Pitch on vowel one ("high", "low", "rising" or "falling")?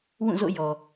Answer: falling